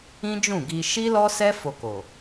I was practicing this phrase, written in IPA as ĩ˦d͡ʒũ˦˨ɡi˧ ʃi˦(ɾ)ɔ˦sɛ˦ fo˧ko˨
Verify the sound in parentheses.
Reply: incorrect: l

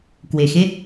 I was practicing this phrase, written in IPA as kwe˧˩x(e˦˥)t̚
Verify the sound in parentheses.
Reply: correct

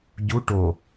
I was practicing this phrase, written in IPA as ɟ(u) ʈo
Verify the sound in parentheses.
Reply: correct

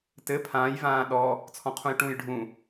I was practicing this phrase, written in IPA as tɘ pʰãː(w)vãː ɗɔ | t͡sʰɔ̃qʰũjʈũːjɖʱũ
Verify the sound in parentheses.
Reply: incorrect: j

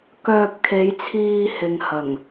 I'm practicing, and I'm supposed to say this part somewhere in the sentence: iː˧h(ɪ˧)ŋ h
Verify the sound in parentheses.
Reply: incorrect: ɪ˨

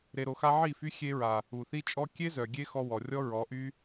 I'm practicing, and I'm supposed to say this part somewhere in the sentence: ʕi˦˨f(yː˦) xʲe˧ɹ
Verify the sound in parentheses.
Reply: incorrect: y˦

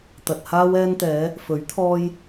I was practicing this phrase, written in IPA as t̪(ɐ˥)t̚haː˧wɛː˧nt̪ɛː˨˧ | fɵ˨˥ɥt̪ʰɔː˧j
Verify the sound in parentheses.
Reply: incorrect: ɐ˨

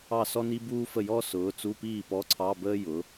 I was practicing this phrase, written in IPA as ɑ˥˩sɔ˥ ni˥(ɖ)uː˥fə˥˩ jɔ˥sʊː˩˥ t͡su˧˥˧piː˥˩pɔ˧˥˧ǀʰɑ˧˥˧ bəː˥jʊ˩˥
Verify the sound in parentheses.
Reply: incorrect: b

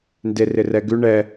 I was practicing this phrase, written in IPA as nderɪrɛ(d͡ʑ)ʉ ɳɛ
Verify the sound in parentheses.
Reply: incorrect: ɡ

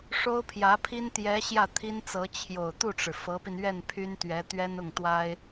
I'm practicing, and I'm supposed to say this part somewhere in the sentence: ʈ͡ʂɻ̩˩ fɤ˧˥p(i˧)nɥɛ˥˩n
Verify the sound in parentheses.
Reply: correct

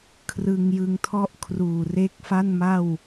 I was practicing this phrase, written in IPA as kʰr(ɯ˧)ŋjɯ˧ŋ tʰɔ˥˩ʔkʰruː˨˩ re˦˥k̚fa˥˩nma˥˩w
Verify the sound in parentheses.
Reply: correct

